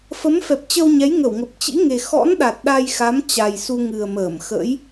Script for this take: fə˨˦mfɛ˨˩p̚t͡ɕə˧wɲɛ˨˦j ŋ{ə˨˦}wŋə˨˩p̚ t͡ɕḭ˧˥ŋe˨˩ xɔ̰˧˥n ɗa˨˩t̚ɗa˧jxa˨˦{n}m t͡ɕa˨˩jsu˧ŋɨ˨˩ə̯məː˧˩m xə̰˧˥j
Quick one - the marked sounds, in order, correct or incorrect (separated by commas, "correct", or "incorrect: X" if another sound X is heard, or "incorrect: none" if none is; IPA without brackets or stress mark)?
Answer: incorrect: ə˧˩, incorrect: none